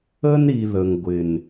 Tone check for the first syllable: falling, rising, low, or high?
high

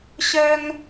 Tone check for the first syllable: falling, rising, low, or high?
high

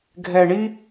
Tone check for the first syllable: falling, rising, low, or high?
low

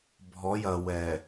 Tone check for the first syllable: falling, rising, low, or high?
rising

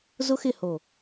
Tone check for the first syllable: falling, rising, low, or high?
high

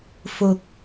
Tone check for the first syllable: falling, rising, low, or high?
low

